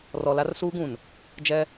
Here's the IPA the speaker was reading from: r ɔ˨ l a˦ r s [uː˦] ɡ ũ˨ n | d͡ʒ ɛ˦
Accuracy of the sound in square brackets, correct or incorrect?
correct